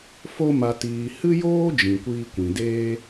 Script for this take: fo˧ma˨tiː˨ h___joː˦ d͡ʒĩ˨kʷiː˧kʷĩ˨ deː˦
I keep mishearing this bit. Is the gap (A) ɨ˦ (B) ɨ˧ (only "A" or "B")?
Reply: A